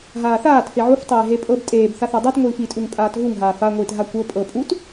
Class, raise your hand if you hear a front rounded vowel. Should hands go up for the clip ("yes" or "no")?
no